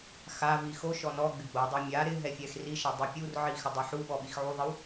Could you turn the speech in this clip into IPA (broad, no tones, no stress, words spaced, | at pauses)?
xavi xo ʃɔnɔɡ͡bɪ ɡ͡bodˤa mʲa ɾɪ ɦɛfʲɛxriʃa dˤipʲurʕi xɪdˤɛħuɓɔ ɓixʕuðˤɪw